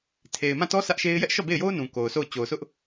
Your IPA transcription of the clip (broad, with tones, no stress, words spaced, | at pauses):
tʰe˨ɪ̯mã˦˨tɔ˦ sä˦ʔʃe˦ɪ̯ jɛ˦ʔʃɔ˦˨be˦˨ɪ̯jo˦ʊ̯ nũ˨ko˨ʊ̯sʰo˦˨ʊ̯ t͡ɕo˨ʊ̯sʊ˦ʔ